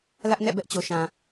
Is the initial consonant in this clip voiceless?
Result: no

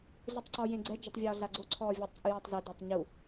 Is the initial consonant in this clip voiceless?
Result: no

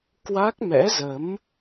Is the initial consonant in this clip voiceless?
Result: yes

